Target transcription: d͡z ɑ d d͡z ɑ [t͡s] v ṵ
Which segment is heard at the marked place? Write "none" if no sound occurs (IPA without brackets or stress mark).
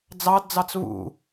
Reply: t͡s